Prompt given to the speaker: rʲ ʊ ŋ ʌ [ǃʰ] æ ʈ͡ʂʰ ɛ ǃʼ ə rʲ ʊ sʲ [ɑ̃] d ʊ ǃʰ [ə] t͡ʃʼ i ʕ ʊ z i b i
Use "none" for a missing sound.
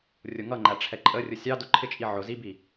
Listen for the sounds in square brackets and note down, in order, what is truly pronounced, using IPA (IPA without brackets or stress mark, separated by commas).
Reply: ŋ͡ǃ, ɑ, ɪ